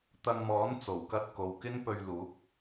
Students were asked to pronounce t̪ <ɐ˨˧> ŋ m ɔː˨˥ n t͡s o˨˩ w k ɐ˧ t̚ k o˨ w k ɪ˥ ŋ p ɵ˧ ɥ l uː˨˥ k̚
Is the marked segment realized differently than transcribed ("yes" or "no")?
yes